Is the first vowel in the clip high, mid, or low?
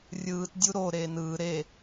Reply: high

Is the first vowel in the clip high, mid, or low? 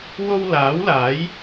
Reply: mid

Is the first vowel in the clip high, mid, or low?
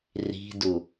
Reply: high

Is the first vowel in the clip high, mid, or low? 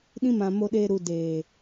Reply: high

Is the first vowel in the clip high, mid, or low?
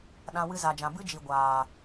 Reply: low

